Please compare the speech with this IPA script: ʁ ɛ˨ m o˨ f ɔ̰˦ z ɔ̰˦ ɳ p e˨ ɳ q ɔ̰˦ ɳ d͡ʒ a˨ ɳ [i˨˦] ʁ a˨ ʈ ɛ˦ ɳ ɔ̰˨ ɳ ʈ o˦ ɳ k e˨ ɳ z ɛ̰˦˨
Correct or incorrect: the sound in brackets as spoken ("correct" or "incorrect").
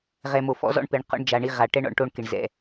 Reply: incorrect